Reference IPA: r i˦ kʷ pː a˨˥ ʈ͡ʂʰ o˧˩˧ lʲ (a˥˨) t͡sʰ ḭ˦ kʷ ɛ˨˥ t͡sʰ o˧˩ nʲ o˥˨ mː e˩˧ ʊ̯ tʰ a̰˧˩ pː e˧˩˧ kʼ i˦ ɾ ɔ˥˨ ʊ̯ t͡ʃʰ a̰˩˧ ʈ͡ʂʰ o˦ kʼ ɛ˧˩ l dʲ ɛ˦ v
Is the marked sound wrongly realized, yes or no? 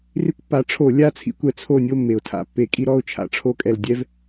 no